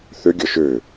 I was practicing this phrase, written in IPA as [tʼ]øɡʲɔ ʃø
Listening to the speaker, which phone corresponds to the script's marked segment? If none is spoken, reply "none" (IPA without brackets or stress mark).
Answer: θ